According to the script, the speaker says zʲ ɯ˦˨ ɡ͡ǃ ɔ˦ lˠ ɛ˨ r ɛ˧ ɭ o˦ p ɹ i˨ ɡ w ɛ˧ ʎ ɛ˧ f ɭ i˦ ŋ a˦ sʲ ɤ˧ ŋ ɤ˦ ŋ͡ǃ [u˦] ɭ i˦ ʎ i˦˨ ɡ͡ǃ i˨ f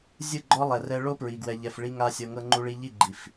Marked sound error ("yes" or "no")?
no